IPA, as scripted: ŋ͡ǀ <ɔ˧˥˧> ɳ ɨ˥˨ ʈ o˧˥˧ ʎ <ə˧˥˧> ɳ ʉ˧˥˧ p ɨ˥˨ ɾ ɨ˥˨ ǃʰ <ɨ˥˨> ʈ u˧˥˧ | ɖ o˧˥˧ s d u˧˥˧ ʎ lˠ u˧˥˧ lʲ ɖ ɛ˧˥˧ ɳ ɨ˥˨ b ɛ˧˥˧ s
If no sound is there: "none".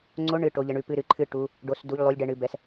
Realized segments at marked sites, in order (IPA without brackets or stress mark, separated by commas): o˧˥˧, ə˧˥˧, ɨ˥˨